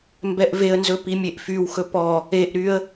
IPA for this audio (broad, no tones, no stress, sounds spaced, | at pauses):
m b ɛ ʔ v e ə̯ n z ɵ p i mʲ e ʔ f y w x ɵ p ɔ | e ʔ ɾ y ə̯